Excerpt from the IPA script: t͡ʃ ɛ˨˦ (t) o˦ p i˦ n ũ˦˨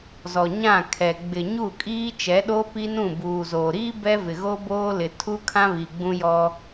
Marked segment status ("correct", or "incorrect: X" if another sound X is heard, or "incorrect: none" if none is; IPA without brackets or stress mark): incorrect: ɗ